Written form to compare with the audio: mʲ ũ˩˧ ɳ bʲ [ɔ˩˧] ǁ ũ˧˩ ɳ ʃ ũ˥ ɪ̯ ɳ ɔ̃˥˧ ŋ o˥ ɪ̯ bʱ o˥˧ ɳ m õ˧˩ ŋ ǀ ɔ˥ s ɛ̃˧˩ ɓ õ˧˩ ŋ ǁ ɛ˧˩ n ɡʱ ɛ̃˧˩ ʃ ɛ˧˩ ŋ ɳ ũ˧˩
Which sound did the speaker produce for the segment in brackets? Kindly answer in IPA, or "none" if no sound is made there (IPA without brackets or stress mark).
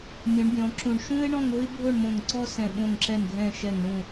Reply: ɔ̃˩˧